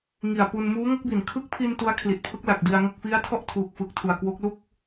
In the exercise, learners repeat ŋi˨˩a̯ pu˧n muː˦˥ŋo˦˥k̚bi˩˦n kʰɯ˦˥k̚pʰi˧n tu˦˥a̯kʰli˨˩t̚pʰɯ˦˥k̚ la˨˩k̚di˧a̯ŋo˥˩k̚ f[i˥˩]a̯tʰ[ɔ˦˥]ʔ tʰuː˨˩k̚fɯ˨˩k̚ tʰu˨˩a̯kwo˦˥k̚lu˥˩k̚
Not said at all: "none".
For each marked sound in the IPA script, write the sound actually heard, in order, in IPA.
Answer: i˦˥, ɔ˥˩

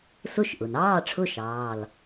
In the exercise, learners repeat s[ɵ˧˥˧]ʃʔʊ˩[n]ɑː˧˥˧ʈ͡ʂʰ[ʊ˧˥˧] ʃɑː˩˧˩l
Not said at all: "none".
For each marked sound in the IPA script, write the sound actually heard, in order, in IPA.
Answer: ʊ˧˥˧, n, ʊ˧˥˧

